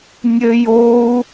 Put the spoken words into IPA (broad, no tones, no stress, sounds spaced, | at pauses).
nʲ ɘ j o u̯